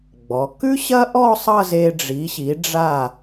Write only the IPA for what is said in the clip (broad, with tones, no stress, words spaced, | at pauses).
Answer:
ɡ͡bɔ˩˧ kʉ˥ɕɐ˥ʔɔ˥˧ sˤʌ˥˧ze˧ ɖ͡ʐi˩˧ɕi˩˧ɖ͡ʐa˧˩